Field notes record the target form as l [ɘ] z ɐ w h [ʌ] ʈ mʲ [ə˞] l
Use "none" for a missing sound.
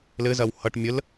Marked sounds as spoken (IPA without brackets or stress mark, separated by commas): ɘ, ʌ, ə